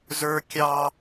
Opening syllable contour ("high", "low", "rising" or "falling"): high